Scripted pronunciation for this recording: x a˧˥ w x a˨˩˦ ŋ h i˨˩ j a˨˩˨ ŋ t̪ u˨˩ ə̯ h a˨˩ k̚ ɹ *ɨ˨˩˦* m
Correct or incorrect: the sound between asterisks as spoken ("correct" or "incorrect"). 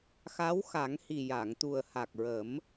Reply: incorrect